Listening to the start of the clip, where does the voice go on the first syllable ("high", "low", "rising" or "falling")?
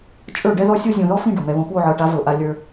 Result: falling